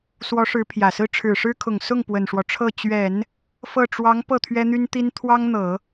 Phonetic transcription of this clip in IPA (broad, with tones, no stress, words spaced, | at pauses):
swɔ˧˥ʂɻ̩˧˥pʰjä˨˩sɹ̩˥ ʈ͡ʂʰɻ̩˨˩ʂɻ̩˥kʰʊ˨˩ŋ sʊ˥˩ŋ pwə˨˩nʂwɔ˦ʈ͡ʂʰɤ˥˩ t͡ɕɥɛ˨˩˦n | fɤ˥˩ ʈ͡ʂwɑ˧˥ŋ pɤ˥˩t̪ʰɥɛ˥n̪y˥nt̪i˥n t̪ʰwɑ˥ŋn̪ɤ˨˩˦